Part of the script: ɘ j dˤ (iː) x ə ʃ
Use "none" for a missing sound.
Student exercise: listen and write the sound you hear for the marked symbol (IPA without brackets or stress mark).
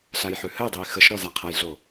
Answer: iː